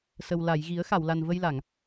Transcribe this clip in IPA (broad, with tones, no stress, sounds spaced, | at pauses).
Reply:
s ə˨˩ w l a˨˩˨ j ɣ i˨˩˦ ə̯ x a˨˩˨ w l a˨˩ n v ə˧ j l a˨˩˨ ŋ